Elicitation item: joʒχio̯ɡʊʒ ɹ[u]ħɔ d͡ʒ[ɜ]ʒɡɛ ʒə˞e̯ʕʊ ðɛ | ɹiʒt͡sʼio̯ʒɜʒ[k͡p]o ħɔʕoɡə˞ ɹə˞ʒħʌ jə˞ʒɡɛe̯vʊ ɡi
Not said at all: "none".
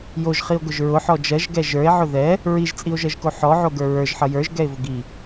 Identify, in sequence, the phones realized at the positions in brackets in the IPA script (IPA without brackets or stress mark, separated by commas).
ʊ, ɜ, k